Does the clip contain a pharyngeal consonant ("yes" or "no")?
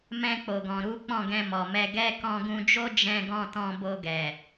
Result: no